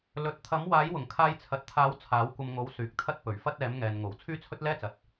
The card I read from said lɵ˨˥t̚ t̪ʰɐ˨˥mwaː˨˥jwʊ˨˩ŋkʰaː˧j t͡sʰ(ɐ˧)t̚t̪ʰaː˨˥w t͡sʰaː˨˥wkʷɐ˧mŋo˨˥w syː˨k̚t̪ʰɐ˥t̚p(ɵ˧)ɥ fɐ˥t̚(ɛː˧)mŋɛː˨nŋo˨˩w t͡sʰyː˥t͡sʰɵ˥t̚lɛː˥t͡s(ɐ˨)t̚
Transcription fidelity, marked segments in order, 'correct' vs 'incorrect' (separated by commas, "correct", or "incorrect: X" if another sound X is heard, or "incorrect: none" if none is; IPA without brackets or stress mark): incorrect: ɐ˨, incorrect: ɵ˨˩, incorrect: ɛː˨˥, correct